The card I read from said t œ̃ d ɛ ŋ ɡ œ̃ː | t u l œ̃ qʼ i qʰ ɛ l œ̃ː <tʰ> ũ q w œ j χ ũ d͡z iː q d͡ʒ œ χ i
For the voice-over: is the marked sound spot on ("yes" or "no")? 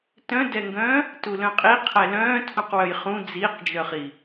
yes